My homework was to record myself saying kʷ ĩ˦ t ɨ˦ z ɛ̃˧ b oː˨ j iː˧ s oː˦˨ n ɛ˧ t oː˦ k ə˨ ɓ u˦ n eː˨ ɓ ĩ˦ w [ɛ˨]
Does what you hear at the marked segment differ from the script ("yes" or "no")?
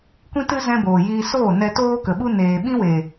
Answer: yes